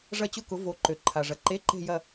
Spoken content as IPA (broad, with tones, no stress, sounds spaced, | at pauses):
ʐ ɐ˥˧ t͡ɕ ʊ˥˧ k ʊ˨˥ v o˨˥ ǃ ø˨ ǃʰ a˨ ʐ ɐ˨ ǃ e˧˥˧ ǃ e̤˥˧ j ɐ˥˧